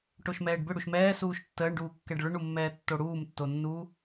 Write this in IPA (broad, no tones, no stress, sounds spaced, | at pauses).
ʈ o ʃ m ɛː ɖ b ʏ ɽ u ʃ m ɛː s uː ʃ tː əː ɳ ɖ uː kː ɛ ɖ ɭ ʏ ɳ u mː ɛː tː o ɽ uː m tː o nː uː